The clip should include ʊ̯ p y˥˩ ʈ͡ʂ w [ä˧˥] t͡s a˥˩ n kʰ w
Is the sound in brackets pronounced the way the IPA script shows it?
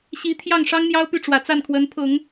no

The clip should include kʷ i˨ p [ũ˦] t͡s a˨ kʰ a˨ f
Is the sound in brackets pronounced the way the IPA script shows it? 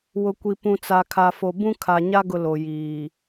no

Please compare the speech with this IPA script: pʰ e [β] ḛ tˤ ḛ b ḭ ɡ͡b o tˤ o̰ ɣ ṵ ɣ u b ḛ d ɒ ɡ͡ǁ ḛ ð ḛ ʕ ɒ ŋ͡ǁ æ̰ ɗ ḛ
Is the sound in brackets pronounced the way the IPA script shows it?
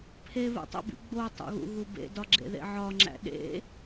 yes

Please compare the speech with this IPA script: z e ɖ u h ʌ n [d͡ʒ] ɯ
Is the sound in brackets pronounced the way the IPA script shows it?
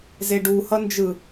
yes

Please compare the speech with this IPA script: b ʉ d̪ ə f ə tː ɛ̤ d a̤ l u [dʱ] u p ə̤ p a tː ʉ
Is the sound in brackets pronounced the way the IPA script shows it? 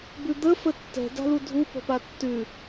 yes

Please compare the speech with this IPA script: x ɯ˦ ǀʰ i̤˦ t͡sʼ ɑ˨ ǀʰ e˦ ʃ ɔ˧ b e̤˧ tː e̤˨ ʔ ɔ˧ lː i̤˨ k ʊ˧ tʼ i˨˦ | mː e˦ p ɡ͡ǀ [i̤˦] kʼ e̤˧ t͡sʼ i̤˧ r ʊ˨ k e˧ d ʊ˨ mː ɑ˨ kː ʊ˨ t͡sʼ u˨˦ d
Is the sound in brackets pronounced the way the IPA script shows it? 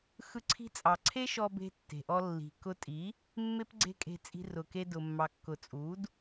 no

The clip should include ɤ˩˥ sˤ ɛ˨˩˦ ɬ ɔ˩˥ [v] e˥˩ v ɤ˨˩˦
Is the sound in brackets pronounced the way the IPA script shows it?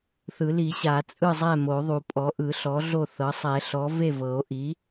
yes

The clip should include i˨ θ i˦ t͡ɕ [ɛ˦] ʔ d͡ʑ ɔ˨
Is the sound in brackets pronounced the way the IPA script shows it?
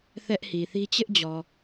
no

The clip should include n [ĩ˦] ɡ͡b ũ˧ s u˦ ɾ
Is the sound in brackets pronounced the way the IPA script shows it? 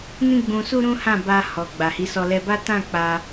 yes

